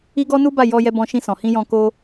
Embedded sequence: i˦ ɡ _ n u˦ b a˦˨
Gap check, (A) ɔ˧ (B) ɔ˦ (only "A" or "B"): B